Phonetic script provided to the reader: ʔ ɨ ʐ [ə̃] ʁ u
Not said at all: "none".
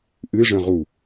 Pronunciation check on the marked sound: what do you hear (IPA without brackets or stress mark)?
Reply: ə̃